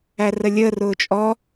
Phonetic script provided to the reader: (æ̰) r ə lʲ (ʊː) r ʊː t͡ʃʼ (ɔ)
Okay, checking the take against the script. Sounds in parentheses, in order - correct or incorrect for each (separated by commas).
incorrect, incorrect, correct